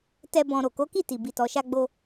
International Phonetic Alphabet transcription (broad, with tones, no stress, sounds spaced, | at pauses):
t ɛ˧ b ɔ̃˨ ɾ o˨ k o˨˦ k i˦˨ t i˨ b i˨ t ɔ˨ ʃ a˧ ɡ͡b o˧